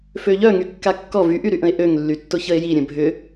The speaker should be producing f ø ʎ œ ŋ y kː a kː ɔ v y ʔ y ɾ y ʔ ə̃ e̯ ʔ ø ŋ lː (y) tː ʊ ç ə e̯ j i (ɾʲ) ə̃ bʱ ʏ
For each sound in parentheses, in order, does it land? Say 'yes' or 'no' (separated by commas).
yes, yes